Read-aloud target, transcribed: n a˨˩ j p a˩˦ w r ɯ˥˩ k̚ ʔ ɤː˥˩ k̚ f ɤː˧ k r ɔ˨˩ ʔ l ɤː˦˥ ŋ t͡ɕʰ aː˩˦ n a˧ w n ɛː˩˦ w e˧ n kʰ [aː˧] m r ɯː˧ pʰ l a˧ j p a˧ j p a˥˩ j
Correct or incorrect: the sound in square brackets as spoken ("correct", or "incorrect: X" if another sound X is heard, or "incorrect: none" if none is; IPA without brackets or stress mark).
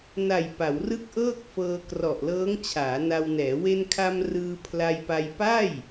incorrect: a˧